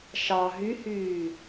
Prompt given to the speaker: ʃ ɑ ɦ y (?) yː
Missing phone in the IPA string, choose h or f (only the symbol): h